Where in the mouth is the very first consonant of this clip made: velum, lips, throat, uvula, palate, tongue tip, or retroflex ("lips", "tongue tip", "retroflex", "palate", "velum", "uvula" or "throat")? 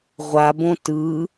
uvula